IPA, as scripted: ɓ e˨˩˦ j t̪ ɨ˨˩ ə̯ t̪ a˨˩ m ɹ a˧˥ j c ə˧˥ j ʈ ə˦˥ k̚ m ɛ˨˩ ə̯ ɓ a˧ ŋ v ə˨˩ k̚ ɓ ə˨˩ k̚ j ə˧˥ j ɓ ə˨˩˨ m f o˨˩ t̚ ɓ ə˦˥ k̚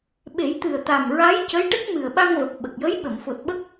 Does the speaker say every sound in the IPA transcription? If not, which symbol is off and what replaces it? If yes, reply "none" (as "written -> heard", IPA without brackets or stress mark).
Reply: ɛ˨˩ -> ɨ˨˩